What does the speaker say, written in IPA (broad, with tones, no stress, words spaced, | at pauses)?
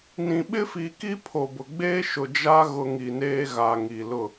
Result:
nĩ˨ɓɪ˦fi˨ ki˦pʰo˨bʊ˨ɡ͡beː˦ ʃʊ˨ d͡ʒa˦ ɣʊ˦ ŋi˨neː˦ɣa˨ ŋi˨lʊ˦˨